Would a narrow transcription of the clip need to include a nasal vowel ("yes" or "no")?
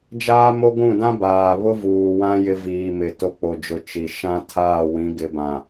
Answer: yes